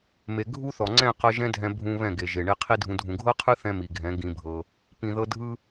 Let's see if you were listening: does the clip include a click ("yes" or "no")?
yes